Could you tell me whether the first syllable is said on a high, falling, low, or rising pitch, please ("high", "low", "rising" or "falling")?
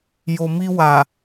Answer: low